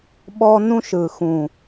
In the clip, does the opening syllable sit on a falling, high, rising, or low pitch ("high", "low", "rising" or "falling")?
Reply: high